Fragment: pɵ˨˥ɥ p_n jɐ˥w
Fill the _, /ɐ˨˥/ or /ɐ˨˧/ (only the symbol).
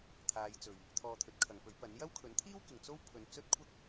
ɐ˨˥